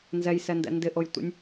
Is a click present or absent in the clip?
absent